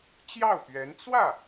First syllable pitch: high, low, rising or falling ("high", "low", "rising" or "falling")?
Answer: falling